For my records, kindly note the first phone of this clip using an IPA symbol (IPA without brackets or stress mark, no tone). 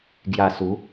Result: ɡ